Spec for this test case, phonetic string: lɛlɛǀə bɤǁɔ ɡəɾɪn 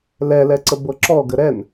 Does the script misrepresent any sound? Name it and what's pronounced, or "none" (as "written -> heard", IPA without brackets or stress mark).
ɪ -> ɛ